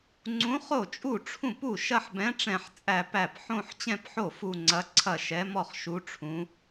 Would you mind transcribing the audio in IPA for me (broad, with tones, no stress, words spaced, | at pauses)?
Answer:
ŋ͡ǀũ˧˥χo˥˩t͡ʃʼu˥˩ʈ͡ʂʰũ˥˩p u˥˩ʃɐ˥˧ħbɛ̃˧˥ ʈ͡ʂɛ̃˥˧ħt͡sʼæ˥˧pæ˥˩p ħõ˥˧ħt͡ɕɛ̃˥˧pħo˥˩ fu˥˧ŋ͡ǀɐ˧˥ǀʰɐ˥˩ ʃɛ˧˥mɔ˥˧χʃu˧˥ ʈ͡ʂʰũ˧˥